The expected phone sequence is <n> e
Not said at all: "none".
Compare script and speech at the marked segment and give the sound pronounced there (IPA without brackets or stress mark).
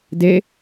d